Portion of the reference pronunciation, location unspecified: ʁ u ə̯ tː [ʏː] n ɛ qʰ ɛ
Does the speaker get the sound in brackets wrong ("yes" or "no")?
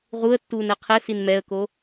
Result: yes